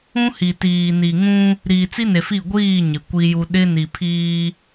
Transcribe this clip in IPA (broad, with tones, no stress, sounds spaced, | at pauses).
ũ˦ h i˨ t iː˨ n i˨ ŋ ũ˦ | ɾ iː˨ t͡s i˦ n e˨ f i˦˨ ɡʷ iː˦˨ ɲ ɪ˨ kʷ i˦ j u˦ ɗ ɪ˦ n i˨ pʰ iː˦